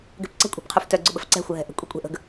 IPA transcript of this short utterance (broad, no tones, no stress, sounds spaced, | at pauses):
ɡ ɛ̤ p ǀ ə̤ kʷʼ i̤ p qʰ o f t œ ɡ͡ǀ ʊ ɓ ə̤ f ǀ ɛ̤ xʷ ə ɦ ɛ̤ ʔ ə̤ kʷʼ i kʷʼ ɛ̤ ʔ ə̤ ɡ